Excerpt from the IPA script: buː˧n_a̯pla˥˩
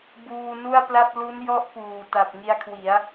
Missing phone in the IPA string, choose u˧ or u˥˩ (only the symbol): u˥˩